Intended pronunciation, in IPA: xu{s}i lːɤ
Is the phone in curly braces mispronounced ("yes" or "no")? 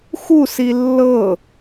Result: no